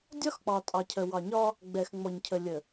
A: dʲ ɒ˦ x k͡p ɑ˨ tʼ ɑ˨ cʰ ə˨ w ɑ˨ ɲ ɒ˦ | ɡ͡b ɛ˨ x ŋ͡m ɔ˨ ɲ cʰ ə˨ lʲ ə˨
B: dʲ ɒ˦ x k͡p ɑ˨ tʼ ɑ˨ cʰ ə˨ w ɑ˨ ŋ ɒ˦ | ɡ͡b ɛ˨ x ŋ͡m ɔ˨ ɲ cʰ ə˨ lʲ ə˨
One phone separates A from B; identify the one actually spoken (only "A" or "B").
A